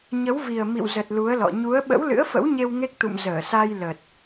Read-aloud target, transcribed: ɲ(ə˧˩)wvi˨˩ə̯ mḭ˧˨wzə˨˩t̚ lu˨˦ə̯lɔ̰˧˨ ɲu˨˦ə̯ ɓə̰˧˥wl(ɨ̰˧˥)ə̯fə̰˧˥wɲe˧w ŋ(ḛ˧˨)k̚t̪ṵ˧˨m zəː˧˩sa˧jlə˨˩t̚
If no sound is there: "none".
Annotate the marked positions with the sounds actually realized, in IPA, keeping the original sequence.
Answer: ə˨˦, ɨ̰˧˥, e˦˥

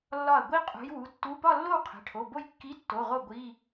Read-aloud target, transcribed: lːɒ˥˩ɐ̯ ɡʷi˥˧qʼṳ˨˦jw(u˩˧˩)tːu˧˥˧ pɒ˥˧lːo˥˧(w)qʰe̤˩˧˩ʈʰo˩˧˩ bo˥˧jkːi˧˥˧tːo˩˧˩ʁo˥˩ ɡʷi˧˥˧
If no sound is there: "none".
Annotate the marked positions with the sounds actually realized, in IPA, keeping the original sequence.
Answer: u˩˧˩, w

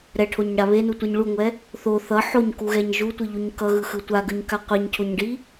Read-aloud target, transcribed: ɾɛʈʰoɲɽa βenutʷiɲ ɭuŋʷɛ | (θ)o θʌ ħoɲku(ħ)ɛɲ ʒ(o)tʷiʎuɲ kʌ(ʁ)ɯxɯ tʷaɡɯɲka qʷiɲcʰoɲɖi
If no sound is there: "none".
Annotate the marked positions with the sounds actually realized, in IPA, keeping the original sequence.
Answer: θ, ɣ, u, ɣ

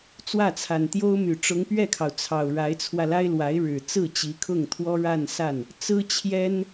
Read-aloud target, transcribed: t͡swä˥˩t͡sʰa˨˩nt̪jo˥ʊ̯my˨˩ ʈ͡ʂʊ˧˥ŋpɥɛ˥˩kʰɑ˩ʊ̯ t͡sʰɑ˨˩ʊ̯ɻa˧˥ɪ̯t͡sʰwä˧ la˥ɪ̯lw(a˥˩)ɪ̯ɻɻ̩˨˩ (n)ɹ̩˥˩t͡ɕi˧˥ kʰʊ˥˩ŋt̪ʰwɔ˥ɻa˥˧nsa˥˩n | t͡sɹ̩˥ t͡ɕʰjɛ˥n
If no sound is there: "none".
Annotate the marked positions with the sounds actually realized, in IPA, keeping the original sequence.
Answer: a˧˥, t͡s

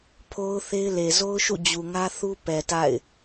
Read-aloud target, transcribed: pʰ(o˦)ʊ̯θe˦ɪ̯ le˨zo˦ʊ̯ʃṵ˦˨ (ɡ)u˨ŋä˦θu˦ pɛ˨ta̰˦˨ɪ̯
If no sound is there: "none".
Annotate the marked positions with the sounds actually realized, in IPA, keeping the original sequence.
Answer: o˦, d͡ʑ

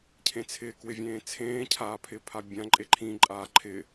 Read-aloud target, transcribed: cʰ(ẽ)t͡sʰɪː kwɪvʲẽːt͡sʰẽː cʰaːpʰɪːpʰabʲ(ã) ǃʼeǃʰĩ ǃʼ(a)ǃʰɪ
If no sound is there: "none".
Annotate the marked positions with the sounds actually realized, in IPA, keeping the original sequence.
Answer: ẽ, ã, aː

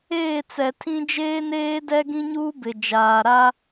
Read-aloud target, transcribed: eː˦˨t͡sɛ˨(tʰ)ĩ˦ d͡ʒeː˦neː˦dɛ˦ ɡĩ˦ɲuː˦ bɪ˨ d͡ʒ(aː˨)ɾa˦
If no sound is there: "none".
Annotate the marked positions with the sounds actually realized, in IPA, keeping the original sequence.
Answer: tʰ, aː˨

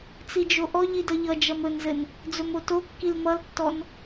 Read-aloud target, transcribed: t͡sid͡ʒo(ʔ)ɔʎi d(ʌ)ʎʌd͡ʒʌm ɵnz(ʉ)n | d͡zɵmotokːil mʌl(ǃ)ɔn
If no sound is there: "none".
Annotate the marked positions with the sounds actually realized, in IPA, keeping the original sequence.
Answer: ʔ, ʌ, ɘ, tː

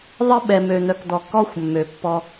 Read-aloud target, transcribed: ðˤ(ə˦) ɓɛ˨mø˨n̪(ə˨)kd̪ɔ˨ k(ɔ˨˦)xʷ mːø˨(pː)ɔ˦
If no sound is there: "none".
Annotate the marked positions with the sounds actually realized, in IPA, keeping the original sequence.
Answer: ə˦, œ˨, ɔ˦, pː

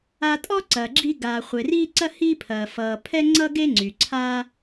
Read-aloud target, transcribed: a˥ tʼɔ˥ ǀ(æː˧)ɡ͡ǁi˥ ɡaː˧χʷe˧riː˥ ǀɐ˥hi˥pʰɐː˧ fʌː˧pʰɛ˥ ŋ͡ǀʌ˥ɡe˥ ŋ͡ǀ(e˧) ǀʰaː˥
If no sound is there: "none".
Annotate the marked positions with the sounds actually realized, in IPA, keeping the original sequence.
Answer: ɐː˧, y˧

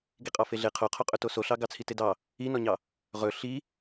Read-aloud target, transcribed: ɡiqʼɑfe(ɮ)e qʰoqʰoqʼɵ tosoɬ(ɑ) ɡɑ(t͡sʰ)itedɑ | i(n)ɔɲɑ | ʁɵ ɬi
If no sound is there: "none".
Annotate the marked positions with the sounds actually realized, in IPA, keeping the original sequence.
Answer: ɮ, ɑ, t͡sʰ, n

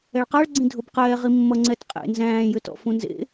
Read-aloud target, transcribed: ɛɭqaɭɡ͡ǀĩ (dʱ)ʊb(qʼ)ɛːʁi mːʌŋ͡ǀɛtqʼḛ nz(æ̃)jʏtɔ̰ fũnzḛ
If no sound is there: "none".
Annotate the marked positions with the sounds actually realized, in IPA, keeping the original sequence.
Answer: dʱ, q, æ̃ː

